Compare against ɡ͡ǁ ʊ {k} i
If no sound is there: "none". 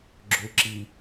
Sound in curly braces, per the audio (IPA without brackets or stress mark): ǁ